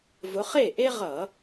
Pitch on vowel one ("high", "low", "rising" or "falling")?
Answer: rising